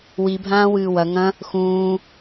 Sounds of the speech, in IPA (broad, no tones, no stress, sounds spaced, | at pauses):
w i bʱ ãː w ɨː w ɐ ŋ ɐ̃ | x ũː